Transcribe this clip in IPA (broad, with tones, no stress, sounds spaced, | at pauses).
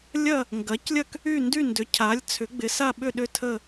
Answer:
lʲ ɐ˥˨ | ŋ ɡ ɐ˩˥ c lʲ ɐ˥˨ k | y˥˨ n d y˥˨ n d ʏ˩˥ cʰ a˩˥ lʲ t͡sʰ ʏ˩˥ ɡ͡b ɪ˩˥ s a˥˨ ɓ ʏ˥˨ ɗ ʏ˥˨ tʰ ə˥˨